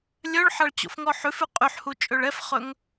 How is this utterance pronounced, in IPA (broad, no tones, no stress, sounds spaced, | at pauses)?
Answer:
lʲ œ ɭ ħ ɑ ɭ t͡ɕ o̰ f ŋ ɔ ħ ʉ f ʉ qʼ y ħ h u t͡ʃʼ ø ɭ ɛ f χ ɵ ŋ